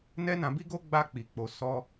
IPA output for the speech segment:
n ɛ˦ n ã˧ b i˦ ɡ o˦ ɡ͡b a˧ k͡p i˨ k͡p o˧ s ɔ˦

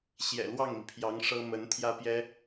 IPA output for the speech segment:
ɕ j ɛ̰˨˩ l w ɑ˥˩ ŋ m i˩ pʰ j ɑ˧˥ ŋ ʂ ɤ˥ m ə˧˥ n t̪ʰ j ä˥ p j ɛ˥

